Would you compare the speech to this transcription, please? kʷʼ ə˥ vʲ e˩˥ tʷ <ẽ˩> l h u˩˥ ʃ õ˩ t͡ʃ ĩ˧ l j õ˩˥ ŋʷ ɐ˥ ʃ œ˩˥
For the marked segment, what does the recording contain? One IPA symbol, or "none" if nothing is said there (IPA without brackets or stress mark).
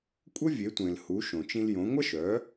ẽ˩